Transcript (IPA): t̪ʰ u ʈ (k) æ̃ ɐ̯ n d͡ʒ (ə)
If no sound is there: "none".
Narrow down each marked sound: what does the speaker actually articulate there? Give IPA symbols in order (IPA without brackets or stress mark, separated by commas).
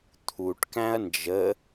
k, ə